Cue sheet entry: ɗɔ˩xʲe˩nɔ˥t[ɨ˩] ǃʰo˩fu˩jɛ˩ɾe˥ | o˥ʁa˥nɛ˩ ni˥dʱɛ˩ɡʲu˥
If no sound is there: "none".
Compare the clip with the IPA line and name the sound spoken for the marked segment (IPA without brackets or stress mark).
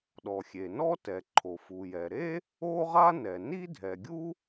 ɛ˩